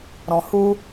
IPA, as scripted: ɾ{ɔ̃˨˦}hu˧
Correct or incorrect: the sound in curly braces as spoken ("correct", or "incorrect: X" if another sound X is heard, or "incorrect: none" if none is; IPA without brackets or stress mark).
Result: incorrect: ɔ̃˨